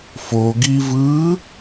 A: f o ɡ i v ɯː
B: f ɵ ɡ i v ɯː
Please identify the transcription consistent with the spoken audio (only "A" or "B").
A